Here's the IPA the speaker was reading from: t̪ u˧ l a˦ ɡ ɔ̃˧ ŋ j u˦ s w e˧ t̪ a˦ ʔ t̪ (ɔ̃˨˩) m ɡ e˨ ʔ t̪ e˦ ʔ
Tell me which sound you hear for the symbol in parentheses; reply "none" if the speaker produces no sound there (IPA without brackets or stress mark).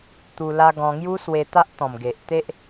ɔ̃˨˩